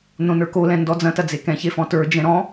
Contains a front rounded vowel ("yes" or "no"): no